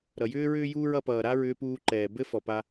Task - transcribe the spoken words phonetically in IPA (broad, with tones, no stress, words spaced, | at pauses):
ɾʌ˩jʏː˥ɹʏː˥juː˥ɹ ʌ˧pʌː˩ɾa˥ ɹʏː˧puː˧ǃɛː˩ bɘ˥ fɔ˩pa˧